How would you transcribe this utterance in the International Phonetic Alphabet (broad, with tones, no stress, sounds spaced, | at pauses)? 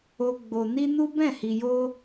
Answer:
o˦ ɡ͡b o˧ n i˦ n u˦ b ɛ̃˦˨ h i˧ j o˦